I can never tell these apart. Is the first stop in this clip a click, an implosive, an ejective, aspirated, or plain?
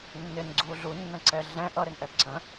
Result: click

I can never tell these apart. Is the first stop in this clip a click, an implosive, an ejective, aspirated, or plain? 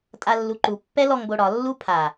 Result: ejective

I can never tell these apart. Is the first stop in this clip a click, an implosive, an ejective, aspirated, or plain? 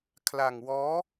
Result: aspirated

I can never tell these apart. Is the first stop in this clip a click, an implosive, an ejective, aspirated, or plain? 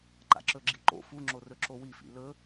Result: click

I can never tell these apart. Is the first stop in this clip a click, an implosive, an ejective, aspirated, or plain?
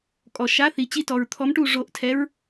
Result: ejective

